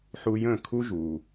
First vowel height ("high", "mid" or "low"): high